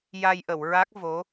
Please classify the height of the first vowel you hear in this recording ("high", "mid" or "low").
low